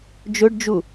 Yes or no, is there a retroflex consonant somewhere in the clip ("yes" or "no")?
yes